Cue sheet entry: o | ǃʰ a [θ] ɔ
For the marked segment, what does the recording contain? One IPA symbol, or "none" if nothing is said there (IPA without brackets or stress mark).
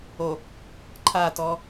t